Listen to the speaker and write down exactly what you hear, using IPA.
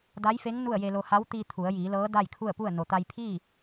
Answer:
d a˧˥ j f e˧˥ ŋ n u˥˨ ə̯ j e˧ l o˧ h a˧˥ w t̪ iː˧ t̪ʰ u˩˧ ə̯ j iː˩˧ l ɤː˧˥ d a˥˨ j kʰ u˥˨ ə̯ p u˥˨ ə̯ n o˩ t̪ a˧ j pʰ iː˥˨

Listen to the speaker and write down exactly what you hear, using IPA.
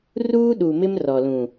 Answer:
r uː˦ ɗ u˨ m ɪ˦ m r ɔ˨ l ũ˨

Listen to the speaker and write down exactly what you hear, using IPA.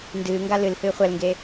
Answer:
n d ɨː ŋ ɡ a l ɨ l h ɨː χʷ ɛ l ŋ ɡ e

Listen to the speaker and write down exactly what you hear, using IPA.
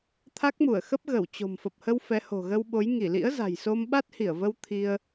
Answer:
t̪ʰ a˦˥ k̚ m u˧˩ ə̯ x ə˦˥ p̚ ɣ ə˧˩ w t͡ɕ o̤˨˩ m f ə˨˩ p̚ h ə˧ w f ɛ˨˦ h o̤˨˩ ɣ ə˧ w ɓ o˨˦ j ŋ i˧˩ l ḭ˧˥ ə̯ z a̤˨˩ j s o˧ m ɓ a˦˥ t̚ h i˧˩ ə̯ v ə˧ w t̪ʰ i˧ ə̯

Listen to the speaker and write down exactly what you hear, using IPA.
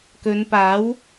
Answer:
k ɵ˨˧ n p aː˨˥ w

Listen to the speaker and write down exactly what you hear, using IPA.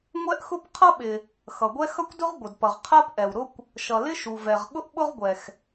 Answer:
ŋʷ ɛ˥ ʔ x ʊ˥ p qʰ ʌ˥ ɓ ɪ˩ | x ʌ˩ ɡʷ ɛ˥ x ʌ˥ kʷ d ʊ˥ ʁ ɡʷ ə˩ d p ʌ˩ ʁ qʰ ɜ˥ p ʔ ɛ˩ w ɾ ʊ˥ kʷ | ʃ ʌ˩ l ɪ˥ ʃ u˩ v ɛ˩ ʁ ɠ ʊ˥ ʔ ɓ ʊ˥ ʁ ɡʷ ɛ˩ x

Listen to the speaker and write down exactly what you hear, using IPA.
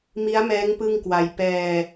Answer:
m i˦˥ a̯ m ɛː˦˥ ŋ p ɯ˥˩ ŋ k w a˧ j p ɛː˧

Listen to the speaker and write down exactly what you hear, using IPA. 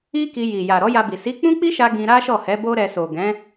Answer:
i˦ k i˧ j i˨ j a˨ ɾ ɔ˨˦ j a˧ b i˨ s i˨˦ k͡p ũ˦ k͡p i˦ ʃ a˧ ɡ ĩ˧ ɾ a˦ ʃ ɔ˦˨ h ɛ˨˦ b o˦ ɾ ɛ˧ s o˨ ɡ ɛ̃˨˦

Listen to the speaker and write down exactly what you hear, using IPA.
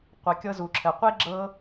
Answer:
qʷ ɘ˨ kʲ ɤ˦ z u˨ ǁʰ ɘ˨ qʷ e˦ ɡ͡ǁ ɤ˧

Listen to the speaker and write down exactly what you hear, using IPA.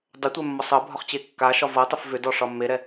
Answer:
dˤ ʏ tʷ ɛ mː ɔ sˤ ɤ bʱ ɒ χ t͡ɕ e kː a ʃ ɒ v ɤ tˤ ʏ f v ʏ d ɔ ʂ ɒ mː e ɾ ɛ

